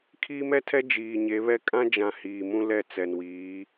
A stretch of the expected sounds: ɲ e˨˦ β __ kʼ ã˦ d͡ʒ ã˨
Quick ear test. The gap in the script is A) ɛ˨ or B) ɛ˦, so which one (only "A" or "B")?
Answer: B